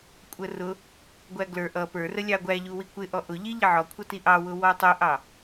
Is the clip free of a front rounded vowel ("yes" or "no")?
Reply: yes